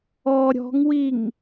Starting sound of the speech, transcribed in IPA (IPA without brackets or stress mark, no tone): ɔ